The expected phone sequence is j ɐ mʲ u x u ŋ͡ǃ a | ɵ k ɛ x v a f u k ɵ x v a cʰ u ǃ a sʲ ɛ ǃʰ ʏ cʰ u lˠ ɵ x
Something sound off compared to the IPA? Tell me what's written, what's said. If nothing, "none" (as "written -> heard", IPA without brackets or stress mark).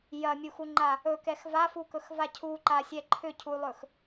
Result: none